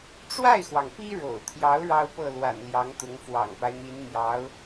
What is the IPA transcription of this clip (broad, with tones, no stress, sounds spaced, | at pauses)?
ʈ͡ʂ w a˥˩ ɪ̯ x w ɑ˩ ŋ p i˥ ɻ o̰˨˩ ʊ̯ t̪ʰ j ɑ˧˥ ʊ̯ ɻ ɑ˥ ʊ̯ p ɤ˥˩ l w a̰˨˩ n l j ɑ˧˥ ŋ t̪ ʊ˧˥ ŋ f w ɑ̰˨˩ ŋ p a˦ ɪ̯ n̪ i˧˥ n n̪ j ɑ˧˥ ʊ̯